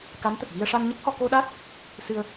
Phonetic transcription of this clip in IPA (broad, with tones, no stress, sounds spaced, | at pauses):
k a˧˥ n t̪ ə˨˩ k̚ v i˧ ə̯ ʂ a˧ n ɲ ə˦˥ k̚ h ɔ˧ k o˧ ɗ a˦˥ t̚ | s ɨ˧ ə̯